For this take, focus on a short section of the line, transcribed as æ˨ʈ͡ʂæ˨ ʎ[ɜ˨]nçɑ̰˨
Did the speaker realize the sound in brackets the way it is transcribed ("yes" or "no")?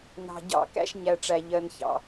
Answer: yes